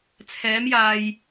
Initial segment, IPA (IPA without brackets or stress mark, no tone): t͡sʰ